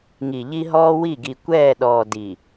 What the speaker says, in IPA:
ŋ i˨ ʎ i˦ ɦ ɔː˦ w i˦˨ ɡ i˨ kʷ ɛː˦˨ ɗ ɔː˨ d i˨

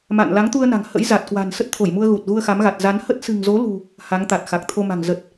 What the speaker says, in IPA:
m a̰˧˨ n l a˨˦ ŋ t̪ u˧ ə̯ n a̤˨˩ ŋ h ə̰˧˥ j z a˨˩ t̚ k w a̤˨˩ n s ə˦˥ t̚ t̪ʰ o˧˩ j m u˧ ə̯ ɣ u˨˩ t̚ ɣ u˧ ə̯ x a˨˦ m ɣ a˨˩ t̚ z a˨˦ n h ə˦˥ t̚ s ɨ̤˨˩ ŋ z o˨˦ l ṳ˨˩ | h a˨˦ ŋ t̪ a˨˩ t̚ x a˨˩ k̚ t̪ʰ o˧ m a̤˨˩ ŋ z ə˨˩ t̚

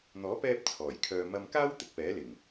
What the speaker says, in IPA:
n̪ ɔː˨˥ p ɛː˧ p̚ t͡sʰ ɔː˨˩ j kʰ œː˧ m ɐ˧ m k aː˥ w t̪ ɪ˨ k̚ p ɛː˨˥ l ɪ˨˩ ŋ

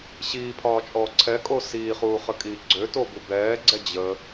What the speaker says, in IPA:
ɕ iː pʰ ɒː t͡ʃʼ ɔː ǀʰ ɛ kʼ o s iː χ uː χ ə kʼ iː ɡ͡ǀ ø t o b u b ɛː ɡ͡ǀ ɛ d͡ʑ ə

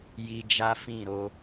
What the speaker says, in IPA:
j i˧ d͡ʒ a˦ f ĩ˦˨ ɾ o˧

